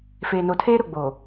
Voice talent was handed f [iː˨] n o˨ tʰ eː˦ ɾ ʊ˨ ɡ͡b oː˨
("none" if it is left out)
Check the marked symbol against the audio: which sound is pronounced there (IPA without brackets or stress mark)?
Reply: eː˨